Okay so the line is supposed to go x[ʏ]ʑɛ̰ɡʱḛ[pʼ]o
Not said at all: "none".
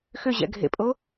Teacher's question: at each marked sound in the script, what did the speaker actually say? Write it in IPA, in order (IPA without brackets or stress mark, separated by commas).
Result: ʏ, pʼ